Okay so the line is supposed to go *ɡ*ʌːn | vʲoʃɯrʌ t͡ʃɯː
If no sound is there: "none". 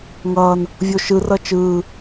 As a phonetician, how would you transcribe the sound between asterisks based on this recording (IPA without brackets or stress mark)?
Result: ŋ